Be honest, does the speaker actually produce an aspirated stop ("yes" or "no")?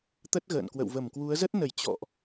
no